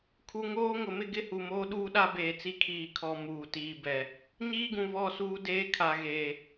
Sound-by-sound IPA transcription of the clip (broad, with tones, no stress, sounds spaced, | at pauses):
kʰ u˨ ŋ oː˦ ŋ ʊ˨ m ɪ˦ ɡ ɪ˦ h u˨ m oː˦ ɗ uː˦ ɗ a˦ b eː˨ t͡s i˦ kʰ iː˨ kʰ ɔ˨ m uː˨ t iː˨ b ɛ˨ | ɲ iː˦ ɡ ũ˨ β ɔ˦˨ s uː˦ d eː˦ kʰ a˨ ɣ eː˨